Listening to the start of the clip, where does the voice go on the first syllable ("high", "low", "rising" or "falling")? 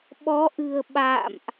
rising